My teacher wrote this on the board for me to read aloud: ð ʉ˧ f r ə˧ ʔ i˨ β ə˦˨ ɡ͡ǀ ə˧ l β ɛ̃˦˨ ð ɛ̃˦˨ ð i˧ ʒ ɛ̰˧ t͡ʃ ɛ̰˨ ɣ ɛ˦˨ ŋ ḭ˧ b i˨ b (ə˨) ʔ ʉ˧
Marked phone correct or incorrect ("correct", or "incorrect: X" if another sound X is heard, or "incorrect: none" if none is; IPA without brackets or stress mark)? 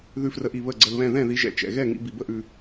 incorrect: ə˦